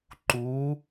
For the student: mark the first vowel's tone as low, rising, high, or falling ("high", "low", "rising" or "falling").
rising